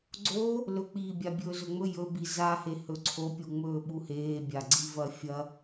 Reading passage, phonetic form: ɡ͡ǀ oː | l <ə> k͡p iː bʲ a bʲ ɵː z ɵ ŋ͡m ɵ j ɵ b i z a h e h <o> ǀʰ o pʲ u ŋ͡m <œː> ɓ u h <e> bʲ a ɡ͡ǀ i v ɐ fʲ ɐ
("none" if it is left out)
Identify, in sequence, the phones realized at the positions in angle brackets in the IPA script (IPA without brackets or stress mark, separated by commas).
ɵ, ɵ, ɵː, eː